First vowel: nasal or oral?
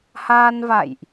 oral